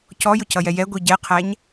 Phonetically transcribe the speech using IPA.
c ɔ j ʊ c ʌ j ɛ j ɛ ɡʷ i ɟ ɛ qʰ æ ɲ

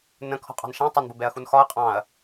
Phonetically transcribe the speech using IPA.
n ə̃ kʰ ɔ̤ qʼ ɑ̤ n ʃ æ̃ tˤ ə n b ʊ b ɛ ɐ̯ x u n x ɒ ɐ̯ qʼ ɑ̃ ɐ̯

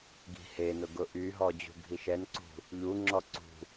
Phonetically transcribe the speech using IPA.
ɡ i̤ h e n ʊ ɡ ʊ ʔ y ɦ ɔ d͡ʑ ṳ ɡʱ i ʃ ɛ n ǀ ṳ | ʎ u ŋ͡ǁ ɔ ǀ ṳ

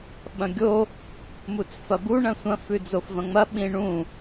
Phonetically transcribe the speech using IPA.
ɓ ɐ̃ ɡʲ o | m u t͡s f ɐ b u ɳ ɐ̃ sʷ ɐ̃ f ʉ d͡z o f v ɐ̃ ŋ͡m ɐ ɓ ĩ ɳ ũ

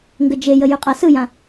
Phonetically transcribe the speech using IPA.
ŋ ɡ ə d͡ʒ e j ə j ʉ qʼ a s ɯ j ã

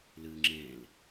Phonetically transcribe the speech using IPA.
l ɨ ŋ͡ǁ ẽ l

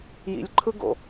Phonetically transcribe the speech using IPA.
j ḭ lʲ ǃʰ ɯ ɡ o̰

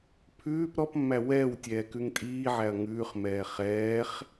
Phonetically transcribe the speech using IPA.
pʰ ʉː p ɾ ɔ p mː æ w ɛː w tʲ ɛː k ʉ ŋ tʼ iː ʕ æ ɐ̯ ŋ ʉː χ m ɛː χ ɛː χ

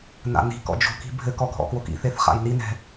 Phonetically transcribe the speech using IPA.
n a̰ n i̤ k ɔ̰ d͡ʒ o̤ k i̤ bʱ ɘ k ɔ ɡʱ ɔ̰ k w o k ḭ θ e θ χ a̰ j n i n ɛ̤

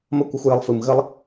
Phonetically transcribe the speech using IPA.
m ɐ˧ kʷ ɨ˨ xʷ j ə˧ lˠ f ɨ˨ m ɣ ə˦ lˠ

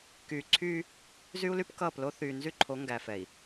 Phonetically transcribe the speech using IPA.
k yː˨ ǀʰ yː˦ | z y˦ u̯ l y˦ p k ʌː˦˨ p l o˦ θ yː˨ n z y˦ ǃʰ o˨˦ ŋ ɡ æ˨ f ɛ˨ i̯

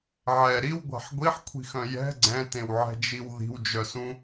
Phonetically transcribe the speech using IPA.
ʕ ɛ ɾ i w ɡʷ a̤ ħ ɡʷ i ħ kʷʰ i̤ x œ̃ j ɛ̤ ɡ͡ǀ ɛ̃ t ẽ w ʕ ɛ̤ d͡ʒ i w ð i̤ w d͡ʒ œ s ũ

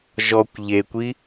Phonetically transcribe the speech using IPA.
ʒ ɔ kʷ ʎ e kʷ i

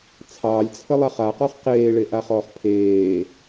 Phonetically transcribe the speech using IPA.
t͡sʰ ɑː lʲ t͡sʰ ə lˠ a χ a q ɔ χ q eː ɭ e ʔ a χ ɔː χ pʰ eː

